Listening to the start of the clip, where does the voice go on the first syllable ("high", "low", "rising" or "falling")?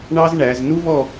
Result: high